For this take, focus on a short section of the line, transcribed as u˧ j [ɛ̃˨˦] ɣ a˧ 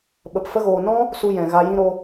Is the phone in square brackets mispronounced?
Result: yes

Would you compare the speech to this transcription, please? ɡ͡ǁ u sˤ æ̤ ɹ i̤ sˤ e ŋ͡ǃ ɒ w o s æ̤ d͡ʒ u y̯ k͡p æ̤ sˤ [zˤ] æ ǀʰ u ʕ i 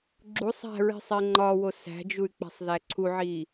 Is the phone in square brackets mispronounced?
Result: yes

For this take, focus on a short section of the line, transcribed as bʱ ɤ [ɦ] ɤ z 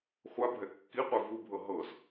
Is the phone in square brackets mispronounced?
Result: no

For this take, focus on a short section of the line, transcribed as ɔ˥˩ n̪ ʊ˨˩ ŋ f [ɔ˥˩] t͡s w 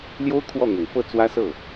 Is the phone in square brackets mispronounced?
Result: yes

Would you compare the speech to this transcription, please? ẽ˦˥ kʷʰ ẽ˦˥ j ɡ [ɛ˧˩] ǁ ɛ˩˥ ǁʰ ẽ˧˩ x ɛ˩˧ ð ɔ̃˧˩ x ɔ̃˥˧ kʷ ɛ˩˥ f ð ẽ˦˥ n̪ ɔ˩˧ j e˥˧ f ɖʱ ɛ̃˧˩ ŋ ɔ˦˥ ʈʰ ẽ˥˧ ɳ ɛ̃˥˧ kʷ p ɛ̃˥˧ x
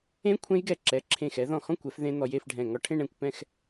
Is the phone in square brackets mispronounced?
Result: no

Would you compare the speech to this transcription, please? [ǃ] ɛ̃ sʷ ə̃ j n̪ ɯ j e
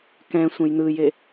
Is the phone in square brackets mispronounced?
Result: yes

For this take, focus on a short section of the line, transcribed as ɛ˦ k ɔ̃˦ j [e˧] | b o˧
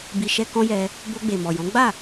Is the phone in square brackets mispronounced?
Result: yes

